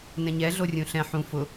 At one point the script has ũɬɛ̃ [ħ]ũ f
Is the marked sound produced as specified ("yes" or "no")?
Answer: yes